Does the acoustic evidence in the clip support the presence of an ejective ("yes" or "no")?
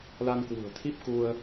no